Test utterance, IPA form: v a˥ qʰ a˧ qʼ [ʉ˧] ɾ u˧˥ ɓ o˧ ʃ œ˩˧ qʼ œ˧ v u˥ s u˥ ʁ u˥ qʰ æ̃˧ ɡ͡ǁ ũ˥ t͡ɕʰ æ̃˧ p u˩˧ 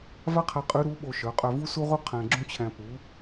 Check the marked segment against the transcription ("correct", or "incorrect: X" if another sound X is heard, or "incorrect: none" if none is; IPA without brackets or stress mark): incorrect: ʉ˧˥